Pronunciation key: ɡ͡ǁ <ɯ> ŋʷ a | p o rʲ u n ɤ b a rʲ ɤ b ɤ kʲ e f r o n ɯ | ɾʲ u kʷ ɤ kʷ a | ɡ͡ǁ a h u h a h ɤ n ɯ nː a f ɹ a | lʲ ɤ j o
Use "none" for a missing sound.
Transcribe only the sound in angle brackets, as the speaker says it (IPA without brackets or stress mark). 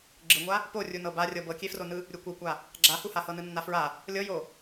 ɯ